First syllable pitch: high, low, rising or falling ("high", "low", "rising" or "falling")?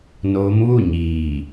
rising